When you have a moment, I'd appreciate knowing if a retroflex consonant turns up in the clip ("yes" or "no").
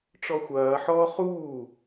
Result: yes